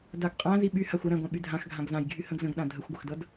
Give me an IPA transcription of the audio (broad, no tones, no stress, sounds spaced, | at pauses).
d a ɡ qʼ ã z i ɓ y h a xʷ ə ɾ æ̃ ɡʷ ã ɓ y dʱ ã x ɡʱ ã ɡ z ã j ɡʱ y h ə̃ ɡ z ə̃ ɡ ɗ ã dʱ ə xʷ ɡʷ ə x d ʌ d